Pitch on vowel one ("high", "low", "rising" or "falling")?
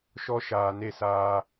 high